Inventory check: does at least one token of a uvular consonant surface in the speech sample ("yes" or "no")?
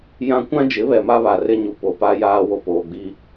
no